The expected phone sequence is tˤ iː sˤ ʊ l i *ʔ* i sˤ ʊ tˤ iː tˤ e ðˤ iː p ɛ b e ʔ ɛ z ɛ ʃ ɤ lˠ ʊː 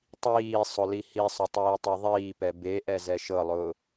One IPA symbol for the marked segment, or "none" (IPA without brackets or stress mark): h